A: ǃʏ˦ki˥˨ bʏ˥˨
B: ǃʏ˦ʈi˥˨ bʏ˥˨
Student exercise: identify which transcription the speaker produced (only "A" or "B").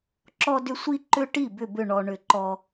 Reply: B